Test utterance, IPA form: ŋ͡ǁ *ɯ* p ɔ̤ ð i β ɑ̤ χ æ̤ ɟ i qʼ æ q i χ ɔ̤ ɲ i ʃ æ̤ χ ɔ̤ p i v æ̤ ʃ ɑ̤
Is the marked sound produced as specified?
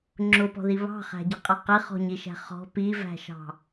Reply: no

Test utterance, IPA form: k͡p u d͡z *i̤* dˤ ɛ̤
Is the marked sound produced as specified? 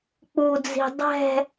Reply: yes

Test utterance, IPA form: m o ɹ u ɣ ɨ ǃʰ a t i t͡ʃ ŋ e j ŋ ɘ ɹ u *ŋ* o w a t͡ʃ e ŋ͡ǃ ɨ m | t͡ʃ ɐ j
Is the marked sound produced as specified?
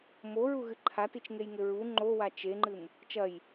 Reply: no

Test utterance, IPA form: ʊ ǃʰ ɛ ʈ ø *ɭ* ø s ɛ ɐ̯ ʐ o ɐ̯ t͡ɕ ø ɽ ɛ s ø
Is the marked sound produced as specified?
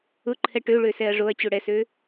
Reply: yes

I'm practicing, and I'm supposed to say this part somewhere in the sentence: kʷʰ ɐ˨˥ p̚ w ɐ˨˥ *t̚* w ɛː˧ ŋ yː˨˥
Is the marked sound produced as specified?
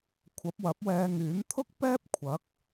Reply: no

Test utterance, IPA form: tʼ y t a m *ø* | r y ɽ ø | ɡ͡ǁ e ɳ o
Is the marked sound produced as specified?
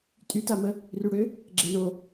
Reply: no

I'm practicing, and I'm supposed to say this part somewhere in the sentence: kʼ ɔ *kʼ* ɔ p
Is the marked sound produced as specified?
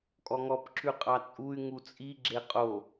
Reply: no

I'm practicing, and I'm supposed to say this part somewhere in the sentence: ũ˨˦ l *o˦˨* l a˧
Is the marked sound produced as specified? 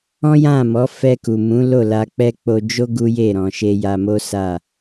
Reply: yes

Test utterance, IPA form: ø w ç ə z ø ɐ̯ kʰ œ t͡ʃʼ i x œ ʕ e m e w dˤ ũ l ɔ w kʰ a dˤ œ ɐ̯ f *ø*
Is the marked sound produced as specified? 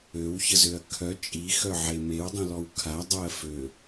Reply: yes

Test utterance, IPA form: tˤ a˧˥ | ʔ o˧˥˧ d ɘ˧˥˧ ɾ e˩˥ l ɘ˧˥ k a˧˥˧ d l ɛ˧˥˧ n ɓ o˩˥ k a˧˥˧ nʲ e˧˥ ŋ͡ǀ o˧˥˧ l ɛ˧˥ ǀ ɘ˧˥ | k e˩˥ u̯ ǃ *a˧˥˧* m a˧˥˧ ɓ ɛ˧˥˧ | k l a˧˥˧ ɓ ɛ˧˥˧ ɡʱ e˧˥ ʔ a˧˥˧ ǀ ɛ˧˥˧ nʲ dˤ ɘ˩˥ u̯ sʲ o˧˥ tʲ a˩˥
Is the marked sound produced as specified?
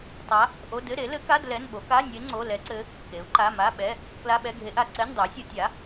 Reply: yes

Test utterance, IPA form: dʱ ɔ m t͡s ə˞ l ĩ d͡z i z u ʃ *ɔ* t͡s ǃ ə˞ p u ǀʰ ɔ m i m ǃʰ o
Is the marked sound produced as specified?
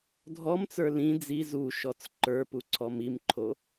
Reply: yes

